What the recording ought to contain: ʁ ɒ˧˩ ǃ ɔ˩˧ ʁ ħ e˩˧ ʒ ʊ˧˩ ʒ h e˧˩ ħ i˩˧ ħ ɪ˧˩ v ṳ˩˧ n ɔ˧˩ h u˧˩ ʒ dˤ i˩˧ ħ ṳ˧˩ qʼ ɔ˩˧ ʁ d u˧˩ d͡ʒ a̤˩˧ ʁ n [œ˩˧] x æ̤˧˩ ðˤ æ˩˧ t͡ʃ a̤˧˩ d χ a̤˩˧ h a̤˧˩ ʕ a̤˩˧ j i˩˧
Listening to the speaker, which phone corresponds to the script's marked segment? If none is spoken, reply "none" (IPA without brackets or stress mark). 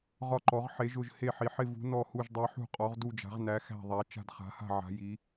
æ˩˧